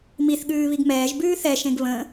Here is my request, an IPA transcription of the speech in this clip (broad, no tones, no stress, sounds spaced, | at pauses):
m i θ ɠ ʉː β i ɡ m ɛː ʒ b ʉː θ ɛ ʃ ẽ ɡ β ə̃